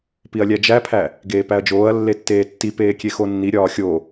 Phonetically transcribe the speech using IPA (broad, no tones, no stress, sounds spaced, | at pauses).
p i ɐ̯ lʲ æ d͡ʒ æ pʰ æ | ɡ eː p æ ɐ̯ d͡ʒ oː ɐ̯ lː e tː eː tː i p eː kʲ e x o nː i ɾʲ ɒː xʲ o